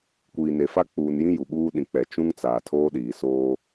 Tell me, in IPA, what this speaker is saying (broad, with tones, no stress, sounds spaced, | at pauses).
kʷ iː˨ n e˨ f a˦ k͡p uː˨ n j ĩ˦ j u˨ ɓ uː˦ ɗ ĩ˨ k͡p ɛ˨ t͡ʃ ũ˦ ŋ t͡s aː˨ tʰ oː˦ ɗ iː˨ s oː˦